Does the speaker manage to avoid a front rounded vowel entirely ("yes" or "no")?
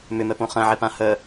no